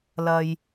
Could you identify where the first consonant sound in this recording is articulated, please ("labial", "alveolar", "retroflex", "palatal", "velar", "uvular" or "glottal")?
alveolar